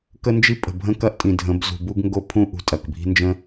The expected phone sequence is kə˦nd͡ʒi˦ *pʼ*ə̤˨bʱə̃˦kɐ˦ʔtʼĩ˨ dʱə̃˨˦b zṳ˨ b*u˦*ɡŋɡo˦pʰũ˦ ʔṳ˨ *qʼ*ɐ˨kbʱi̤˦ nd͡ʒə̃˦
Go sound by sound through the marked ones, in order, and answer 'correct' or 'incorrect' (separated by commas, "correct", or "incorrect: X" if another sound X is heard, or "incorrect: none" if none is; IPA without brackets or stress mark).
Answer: correct, correct, incorrect: tʼ